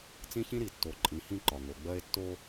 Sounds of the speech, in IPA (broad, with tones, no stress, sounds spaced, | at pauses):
t͡s ĩ˦ ç ĩ˦ ɾ i˨ tː o˨ ǃʼ ĩ˨˦ h ĩ˦ ǃ ɒ˨ ŋ o˨ ɡ͡b ɜ˦ e̯ tː o˦